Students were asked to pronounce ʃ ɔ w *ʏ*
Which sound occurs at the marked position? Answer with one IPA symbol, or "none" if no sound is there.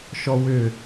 ʏ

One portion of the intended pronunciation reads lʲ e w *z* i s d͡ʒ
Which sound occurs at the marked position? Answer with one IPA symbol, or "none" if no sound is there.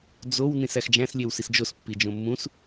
s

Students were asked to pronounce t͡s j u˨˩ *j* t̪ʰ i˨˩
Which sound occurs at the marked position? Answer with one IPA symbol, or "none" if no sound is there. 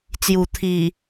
none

